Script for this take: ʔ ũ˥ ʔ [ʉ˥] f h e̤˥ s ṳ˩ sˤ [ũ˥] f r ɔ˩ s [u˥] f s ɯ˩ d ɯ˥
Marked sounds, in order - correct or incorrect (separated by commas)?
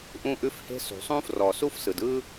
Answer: correct, correct, correct